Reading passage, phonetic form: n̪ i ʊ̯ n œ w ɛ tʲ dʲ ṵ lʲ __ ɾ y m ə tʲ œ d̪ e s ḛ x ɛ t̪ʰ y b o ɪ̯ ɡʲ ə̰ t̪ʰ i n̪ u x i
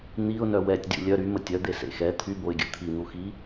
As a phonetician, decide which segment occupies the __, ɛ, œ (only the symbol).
œ